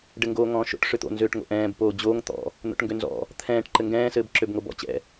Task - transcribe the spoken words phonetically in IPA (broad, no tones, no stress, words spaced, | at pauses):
ɖɘŋɡoːŋɔ̃ːʃo̰ʈ ʂøt̪o̰ nzøːʈŋo̰ʔɛ̃ːb poːd͡ʑoːŋ t̪ɔ̰ | n̪o̰ʈŋɡønzɔ̰ | t̪ʰɛ̃ːʈ ǃɘŋɡɛ̃ː sɘːbǁøbŋobɔ̰ t͡ɕɛ̰